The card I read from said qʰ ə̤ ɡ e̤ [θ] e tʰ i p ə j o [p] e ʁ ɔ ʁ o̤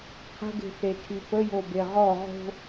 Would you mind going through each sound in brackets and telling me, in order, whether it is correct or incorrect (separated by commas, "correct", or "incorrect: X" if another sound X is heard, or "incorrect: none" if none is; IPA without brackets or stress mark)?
correct, incorrect: b